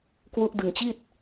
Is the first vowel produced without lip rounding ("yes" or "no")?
no